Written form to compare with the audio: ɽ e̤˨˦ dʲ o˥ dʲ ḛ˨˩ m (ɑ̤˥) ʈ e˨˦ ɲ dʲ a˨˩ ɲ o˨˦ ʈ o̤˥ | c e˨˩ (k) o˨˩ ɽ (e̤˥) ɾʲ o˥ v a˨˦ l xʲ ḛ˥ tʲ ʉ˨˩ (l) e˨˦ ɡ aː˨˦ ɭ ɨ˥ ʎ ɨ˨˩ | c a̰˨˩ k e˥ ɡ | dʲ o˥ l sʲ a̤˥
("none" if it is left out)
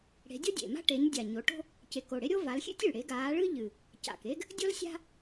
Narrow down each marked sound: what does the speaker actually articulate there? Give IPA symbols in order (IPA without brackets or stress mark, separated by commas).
a̤˥, k, e˥, ɽ